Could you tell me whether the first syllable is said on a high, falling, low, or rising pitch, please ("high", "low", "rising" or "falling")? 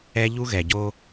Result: high